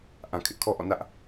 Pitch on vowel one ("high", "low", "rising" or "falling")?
low